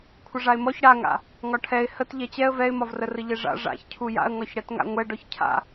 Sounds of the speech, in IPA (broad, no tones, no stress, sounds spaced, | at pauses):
kʷʰ ə ʐ a ɪ̯ m ɔ ç ɽ a ŋ a̰ | ŋ ɒ ʈʰ ɛ ɪ̯ h ə t ʎ ɛ t͡ɕ ɛ ə̯ v ɛ ɪ̯ m ɒ v r ə r ə ʎ ɛ ʐ a̰ ʐ a̰ ç cʰ u j a̰ ə̯ ŋ ɒ ç ɽ ɛ t ŋ a̰ ŋʷ ɛ ɖ ɔ ç cʰ a̰